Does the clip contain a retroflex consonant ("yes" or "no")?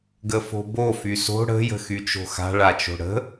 yes